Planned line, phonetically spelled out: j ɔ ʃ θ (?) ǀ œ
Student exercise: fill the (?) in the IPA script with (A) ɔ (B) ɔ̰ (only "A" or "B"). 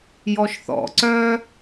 B